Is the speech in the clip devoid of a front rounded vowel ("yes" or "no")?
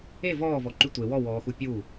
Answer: no